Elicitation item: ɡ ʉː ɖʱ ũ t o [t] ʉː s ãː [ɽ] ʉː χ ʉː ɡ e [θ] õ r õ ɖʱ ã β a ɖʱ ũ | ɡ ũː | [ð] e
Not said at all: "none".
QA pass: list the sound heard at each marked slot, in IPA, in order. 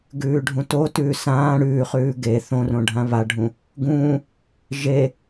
t, ɽ, θ, ʒ

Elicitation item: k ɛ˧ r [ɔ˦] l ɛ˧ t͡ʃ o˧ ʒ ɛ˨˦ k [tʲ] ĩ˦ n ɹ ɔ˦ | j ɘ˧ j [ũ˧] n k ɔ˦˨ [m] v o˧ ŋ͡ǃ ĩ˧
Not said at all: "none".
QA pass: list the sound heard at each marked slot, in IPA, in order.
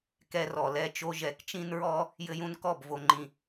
ɔ˨, t͡ʃ, ũ˧, b

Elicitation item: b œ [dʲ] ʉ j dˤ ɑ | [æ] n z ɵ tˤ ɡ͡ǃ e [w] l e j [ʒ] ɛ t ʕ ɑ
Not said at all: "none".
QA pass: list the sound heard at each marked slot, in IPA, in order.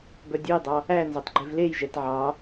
dʲ, æ, v, ʒ

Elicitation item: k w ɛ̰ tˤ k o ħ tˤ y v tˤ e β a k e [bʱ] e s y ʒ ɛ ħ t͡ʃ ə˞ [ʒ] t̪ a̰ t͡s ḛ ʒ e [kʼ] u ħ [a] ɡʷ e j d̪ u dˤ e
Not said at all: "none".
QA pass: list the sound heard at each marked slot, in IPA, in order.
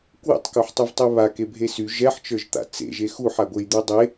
bʱ, ʒ, x, a

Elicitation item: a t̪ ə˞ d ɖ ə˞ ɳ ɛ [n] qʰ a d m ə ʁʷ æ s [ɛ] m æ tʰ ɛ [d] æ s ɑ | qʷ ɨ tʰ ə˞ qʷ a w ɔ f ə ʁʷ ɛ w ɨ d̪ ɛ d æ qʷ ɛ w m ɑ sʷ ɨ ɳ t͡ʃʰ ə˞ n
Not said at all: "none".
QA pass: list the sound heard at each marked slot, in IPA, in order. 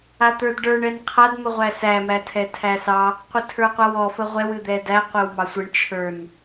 n, æ, tʰ

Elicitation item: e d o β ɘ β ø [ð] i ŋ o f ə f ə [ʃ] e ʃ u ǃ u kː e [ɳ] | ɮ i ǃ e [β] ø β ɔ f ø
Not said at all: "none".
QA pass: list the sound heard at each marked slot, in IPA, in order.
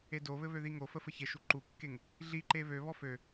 ð, ç, ŋ, β

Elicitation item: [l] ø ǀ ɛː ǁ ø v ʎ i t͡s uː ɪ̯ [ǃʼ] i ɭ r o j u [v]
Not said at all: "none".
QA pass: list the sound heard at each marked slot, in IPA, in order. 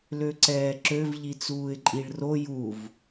l, ǃʼ, v

